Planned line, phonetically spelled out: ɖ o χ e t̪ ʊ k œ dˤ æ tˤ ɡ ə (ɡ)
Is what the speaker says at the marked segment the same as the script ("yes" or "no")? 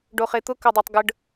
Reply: no